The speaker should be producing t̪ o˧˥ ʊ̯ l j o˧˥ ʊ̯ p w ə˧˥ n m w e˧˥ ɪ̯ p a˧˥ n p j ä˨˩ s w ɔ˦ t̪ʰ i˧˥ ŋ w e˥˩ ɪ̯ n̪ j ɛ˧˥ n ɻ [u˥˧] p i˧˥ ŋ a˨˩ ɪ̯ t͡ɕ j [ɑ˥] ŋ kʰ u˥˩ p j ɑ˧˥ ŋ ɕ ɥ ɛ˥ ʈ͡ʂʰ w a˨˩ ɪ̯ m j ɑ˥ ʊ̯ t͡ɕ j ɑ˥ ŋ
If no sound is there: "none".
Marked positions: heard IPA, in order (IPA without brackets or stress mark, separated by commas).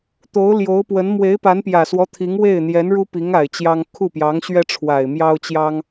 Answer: u˥, ɑ˥